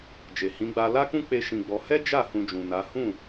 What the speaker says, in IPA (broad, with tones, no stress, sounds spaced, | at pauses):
d͡ʒ e˨ h ĩ˨˦ ɡ͡b a˧ l a˦ k ũ˦ k͡p e˧ ʃ ĩ˧ ɡ͡b ɔ˧ h ɛ˦ d͡ʒ a˦˨ h ũ˧ d͡ʒ ũ˨ n a˨˦ h ũ˦˨